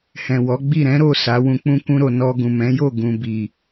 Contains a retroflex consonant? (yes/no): no